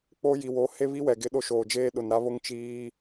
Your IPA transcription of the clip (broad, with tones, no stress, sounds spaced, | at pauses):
k͡p o˦ j i˨ w o˨˦ h e˦ β i˦ w ɛ˨ ɡ ɪ˦ ɗ o˦ ʃ oː˨ d͡ʒ eː˦ ɗ ʊ˨ n ɾ a˦ β o˦ ŋ t͡ʃ iː˦